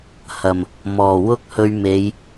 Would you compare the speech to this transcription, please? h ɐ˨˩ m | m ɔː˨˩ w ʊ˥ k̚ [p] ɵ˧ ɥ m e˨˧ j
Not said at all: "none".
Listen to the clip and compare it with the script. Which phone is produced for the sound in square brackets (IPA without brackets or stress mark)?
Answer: h